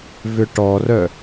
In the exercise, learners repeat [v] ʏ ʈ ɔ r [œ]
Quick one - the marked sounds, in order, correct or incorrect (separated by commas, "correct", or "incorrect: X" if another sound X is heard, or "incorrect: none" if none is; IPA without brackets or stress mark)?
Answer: correct, correct